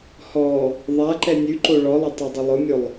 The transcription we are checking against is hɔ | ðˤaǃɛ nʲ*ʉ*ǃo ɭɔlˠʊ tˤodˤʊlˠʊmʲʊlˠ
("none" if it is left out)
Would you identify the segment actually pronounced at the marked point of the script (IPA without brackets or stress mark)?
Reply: ʉ